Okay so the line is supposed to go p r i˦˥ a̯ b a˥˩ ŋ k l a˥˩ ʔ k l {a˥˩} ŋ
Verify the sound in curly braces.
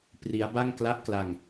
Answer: incorrect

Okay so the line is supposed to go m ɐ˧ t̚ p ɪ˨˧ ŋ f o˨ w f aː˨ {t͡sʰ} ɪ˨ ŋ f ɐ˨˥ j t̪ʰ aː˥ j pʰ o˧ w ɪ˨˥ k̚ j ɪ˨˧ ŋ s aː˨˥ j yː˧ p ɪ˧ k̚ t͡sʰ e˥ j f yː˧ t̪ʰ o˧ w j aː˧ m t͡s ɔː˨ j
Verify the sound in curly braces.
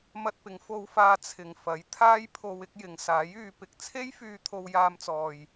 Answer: correct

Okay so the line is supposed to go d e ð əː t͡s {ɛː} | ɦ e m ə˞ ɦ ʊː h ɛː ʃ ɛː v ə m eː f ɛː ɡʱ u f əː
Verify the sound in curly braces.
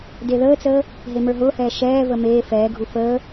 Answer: incorrect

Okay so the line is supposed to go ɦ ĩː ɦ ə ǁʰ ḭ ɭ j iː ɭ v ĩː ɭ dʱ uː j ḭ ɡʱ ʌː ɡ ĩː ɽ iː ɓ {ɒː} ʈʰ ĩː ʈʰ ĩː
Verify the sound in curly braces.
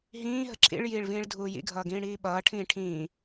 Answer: incorrect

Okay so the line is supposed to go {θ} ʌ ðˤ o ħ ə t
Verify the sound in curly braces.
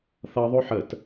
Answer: correct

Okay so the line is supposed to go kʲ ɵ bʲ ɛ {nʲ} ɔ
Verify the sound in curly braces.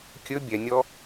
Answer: correct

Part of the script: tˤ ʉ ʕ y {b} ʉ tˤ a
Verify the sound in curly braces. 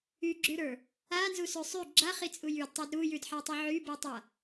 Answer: correct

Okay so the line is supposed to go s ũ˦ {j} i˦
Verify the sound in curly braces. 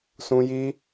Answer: correct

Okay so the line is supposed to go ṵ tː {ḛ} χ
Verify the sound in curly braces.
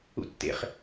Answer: correct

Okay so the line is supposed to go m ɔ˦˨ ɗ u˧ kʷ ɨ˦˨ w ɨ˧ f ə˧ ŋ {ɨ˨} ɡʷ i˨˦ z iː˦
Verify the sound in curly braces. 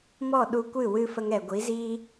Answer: incorrect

